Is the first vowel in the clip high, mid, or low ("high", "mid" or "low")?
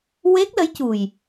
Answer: mid